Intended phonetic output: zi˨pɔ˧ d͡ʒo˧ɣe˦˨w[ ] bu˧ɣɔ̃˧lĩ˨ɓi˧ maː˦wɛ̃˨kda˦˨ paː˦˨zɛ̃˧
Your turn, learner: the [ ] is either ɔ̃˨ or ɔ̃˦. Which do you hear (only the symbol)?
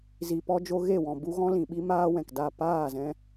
ɔ̃˨